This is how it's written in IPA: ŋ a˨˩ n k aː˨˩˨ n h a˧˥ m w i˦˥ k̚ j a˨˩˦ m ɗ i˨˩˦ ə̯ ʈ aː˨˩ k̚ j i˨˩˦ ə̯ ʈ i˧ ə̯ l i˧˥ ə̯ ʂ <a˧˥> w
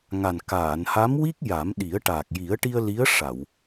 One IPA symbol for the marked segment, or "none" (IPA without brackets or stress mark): a˨˩˨